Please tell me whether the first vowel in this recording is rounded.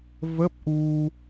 no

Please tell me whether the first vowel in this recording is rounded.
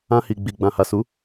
no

